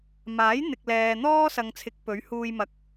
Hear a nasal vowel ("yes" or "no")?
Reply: no